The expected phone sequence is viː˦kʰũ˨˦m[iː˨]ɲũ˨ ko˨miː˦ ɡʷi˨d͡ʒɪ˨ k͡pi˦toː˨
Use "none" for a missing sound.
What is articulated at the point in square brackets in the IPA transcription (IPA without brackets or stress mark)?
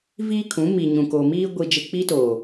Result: iː˨